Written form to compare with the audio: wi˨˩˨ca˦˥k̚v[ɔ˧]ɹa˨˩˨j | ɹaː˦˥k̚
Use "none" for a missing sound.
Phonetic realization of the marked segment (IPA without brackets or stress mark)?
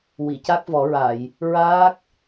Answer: ɔ˨˩˦